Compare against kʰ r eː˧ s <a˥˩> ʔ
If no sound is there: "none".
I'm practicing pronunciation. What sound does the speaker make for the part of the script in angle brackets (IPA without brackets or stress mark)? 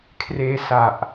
a˨˩